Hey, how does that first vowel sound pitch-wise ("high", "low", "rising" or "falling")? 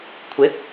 rising